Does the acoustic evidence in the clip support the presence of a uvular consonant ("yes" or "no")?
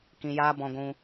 no